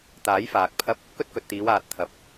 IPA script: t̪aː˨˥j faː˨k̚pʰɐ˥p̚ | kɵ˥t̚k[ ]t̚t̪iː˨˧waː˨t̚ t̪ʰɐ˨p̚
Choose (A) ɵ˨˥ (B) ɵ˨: B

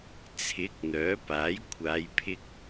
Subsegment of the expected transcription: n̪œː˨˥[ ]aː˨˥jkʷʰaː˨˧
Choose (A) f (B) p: B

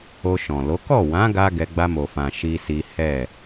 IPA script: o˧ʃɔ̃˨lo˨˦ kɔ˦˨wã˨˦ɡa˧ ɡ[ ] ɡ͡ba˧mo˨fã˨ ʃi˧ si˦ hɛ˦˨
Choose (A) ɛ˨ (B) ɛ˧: B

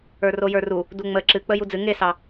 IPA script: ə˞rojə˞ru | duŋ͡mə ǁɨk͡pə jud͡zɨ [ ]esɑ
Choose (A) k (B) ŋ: B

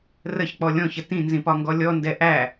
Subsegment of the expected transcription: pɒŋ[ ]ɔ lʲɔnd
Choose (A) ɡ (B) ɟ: A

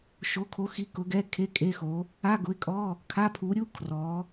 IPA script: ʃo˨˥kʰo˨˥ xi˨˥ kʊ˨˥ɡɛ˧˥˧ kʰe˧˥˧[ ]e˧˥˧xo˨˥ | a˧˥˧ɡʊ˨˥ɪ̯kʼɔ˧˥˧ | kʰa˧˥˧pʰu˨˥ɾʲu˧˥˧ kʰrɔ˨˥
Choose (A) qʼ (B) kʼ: B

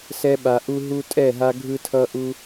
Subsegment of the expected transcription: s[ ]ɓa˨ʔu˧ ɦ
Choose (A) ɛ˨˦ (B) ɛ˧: B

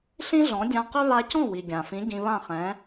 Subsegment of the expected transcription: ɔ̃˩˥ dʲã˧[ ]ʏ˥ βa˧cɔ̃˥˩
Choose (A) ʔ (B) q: B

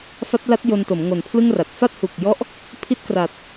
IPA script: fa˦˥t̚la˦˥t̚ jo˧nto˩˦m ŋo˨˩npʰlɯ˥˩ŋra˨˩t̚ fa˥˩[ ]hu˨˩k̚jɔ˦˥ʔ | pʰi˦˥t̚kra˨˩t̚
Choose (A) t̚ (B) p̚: A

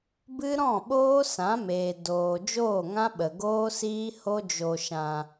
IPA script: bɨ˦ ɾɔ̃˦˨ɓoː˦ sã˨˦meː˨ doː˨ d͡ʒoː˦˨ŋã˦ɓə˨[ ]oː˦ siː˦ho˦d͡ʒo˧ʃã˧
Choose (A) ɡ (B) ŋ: A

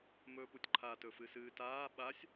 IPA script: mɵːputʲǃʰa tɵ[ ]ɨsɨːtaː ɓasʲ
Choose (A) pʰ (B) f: B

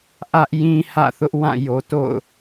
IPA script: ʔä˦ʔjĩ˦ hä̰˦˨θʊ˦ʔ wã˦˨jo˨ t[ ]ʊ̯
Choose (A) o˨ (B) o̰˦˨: B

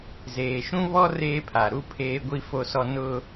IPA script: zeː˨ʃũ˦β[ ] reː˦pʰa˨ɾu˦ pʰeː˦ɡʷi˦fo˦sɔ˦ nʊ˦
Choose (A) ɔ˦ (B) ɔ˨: A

